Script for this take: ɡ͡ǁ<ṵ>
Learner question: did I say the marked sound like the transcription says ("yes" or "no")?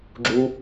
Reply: no